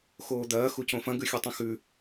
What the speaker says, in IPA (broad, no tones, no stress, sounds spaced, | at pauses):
x oː d̪ ɐː x u c õ f ɐ̃ ɡ ʉ xʲ u tˤ õ x ʉ